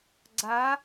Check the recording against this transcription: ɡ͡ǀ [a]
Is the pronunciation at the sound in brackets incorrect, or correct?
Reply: correct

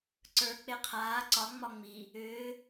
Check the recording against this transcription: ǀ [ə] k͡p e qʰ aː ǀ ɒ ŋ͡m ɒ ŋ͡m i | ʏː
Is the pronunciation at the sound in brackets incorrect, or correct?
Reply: incorrect: ə˞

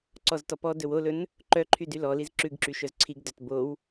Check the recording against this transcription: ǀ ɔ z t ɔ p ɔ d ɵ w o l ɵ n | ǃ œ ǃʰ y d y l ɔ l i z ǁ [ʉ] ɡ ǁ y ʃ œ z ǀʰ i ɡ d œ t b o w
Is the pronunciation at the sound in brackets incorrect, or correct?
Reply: correct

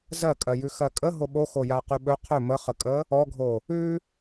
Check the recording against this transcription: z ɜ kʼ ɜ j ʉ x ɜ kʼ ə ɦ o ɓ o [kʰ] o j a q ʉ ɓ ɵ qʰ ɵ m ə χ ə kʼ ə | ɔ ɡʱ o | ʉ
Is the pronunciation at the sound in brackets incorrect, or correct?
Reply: incorrect: x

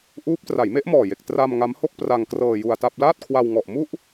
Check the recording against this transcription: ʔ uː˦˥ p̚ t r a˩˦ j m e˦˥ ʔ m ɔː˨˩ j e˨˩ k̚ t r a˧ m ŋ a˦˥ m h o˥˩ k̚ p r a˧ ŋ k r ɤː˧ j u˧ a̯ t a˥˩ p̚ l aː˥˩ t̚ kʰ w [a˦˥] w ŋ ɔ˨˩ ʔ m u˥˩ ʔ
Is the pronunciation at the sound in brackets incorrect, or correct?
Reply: incorrect: a˧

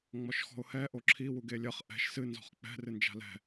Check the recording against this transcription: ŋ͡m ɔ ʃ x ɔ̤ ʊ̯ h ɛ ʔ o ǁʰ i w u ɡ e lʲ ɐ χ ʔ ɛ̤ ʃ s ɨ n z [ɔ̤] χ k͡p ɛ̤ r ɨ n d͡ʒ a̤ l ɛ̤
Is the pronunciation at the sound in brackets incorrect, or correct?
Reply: correct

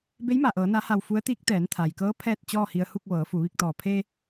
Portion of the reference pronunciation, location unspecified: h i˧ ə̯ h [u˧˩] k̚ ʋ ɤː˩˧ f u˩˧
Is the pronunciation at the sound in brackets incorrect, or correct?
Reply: incorrect: u˥˨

